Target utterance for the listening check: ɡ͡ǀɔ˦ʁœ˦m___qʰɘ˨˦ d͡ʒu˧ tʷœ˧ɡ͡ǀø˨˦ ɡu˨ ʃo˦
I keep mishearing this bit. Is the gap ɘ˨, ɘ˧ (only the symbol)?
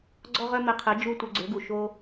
ɘ˧